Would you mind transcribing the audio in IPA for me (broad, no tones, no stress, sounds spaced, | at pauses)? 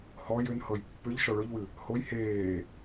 h ɔ j ʏ n h ɤ j pː ʏ ʎ ʃ ɔ ɭ ɵ ʎ w ɨ | h o j h eː